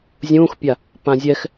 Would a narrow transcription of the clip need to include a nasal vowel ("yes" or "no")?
yes